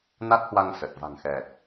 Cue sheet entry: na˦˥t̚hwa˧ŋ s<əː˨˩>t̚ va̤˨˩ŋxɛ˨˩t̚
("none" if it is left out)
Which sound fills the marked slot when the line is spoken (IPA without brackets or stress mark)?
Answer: ə˨˩